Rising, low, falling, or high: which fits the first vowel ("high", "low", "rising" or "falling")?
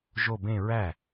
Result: falling